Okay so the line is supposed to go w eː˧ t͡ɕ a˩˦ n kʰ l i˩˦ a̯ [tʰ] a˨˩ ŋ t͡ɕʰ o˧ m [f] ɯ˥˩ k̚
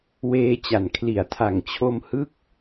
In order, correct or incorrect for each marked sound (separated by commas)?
correct, incorrect